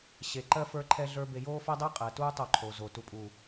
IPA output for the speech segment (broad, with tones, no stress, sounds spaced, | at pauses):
ɕ e˨ ǃ ɜ˦ f ə˞˦ ǃʰ ɛ˦ ɮ ə˞˦ b e˨ j oː˦ f ɜ˦ dˤ ɛ˦ qʼ ɜ˨ t uː˦ tˤ o˦˨ ǃʰ o˨ z o˨ t u˨ pʼ uː˨